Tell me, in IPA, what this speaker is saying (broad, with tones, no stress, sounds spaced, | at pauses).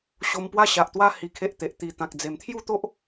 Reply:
ɕ o˧ m p w a˥˧ ɕ a˨ ʔ t̪ w a˦ h i˧ kʰ e˦ ʔ t̪ e˨ ʔ t̪ i˨˩ t̪ ã˨ k̚ d͡z e˨˩ m t̪ʰ j u˥˧ t̪ o˦ ʔ